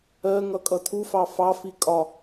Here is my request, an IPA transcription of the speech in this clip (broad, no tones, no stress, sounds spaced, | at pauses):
ɜ ŋ ʌ kʼ ʌ tʰ u f ɑ f ɑ f i kʼ ɒ